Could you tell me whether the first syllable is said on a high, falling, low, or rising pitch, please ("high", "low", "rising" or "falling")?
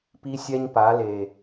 high